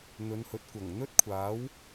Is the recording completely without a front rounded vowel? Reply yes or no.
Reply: yes